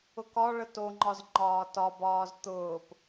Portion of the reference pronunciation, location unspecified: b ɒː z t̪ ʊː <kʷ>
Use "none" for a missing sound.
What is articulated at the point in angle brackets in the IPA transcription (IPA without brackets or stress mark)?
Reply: p